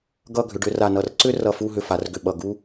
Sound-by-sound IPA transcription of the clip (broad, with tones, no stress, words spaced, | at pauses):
ɡʌ˥˧ɡʱʏ˩˧ɖ ʏ˩˧ra˧˩nʌ˧˩r ǀʏ˥ rʌ˧˩fu˥˧ɦʏ˧ fa˩˧rɡʏ˧˩ ɓʌ˧˩ ɡu˥